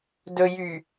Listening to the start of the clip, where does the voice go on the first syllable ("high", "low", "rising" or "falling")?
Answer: low